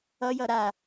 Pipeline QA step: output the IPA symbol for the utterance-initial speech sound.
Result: ʌ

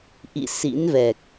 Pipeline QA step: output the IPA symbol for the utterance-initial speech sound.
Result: ʔ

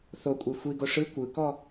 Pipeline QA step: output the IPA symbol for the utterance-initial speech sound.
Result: θ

